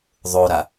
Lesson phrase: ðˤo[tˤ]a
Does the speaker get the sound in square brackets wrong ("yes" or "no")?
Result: yes